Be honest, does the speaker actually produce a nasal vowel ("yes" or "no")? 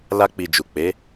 no